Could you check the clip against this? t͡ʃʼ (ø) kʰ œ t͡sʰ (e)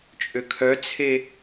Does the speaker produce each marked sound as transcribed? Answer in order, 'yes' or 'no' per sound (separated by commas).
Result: yes, yes